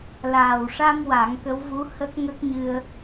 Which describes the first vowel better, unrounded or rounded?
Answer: unrounded